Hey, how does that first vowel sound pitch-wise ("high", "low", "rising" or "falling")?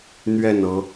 falling